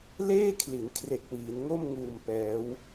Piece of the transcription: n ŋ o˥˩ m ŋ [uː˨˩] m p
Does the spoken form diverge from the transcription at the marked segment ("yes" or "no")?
no